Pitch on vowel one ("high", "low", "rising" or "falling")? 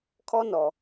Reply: high